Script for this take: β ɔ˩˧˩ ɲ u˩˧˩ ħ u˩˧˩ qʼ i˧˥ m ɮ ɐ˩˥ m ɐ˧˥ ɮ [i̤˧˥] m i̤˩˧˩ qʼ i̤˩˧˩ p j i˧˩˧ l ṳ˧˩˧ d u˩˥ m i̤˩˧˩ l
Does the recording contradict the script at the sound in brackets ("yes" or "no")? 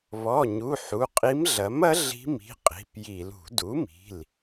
no